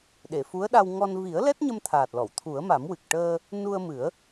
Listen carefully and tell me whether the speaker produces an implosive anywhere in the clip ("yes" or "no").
yes